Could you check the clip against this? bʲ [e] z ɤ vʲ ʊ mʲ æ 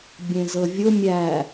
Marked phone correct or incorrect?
incorrect